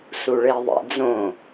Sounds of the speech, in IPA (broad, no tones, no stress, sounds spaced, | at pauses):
s u ɭ e ðˤ ḛ d͡z õ